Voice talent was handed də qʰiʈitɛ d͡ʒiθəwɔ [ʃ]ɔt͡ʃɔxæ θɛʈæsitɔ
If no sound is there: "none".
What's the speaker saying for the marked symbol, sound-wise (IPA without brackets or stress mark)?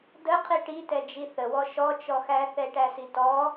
ʃ